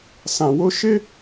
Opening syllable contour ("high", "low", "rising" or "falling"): low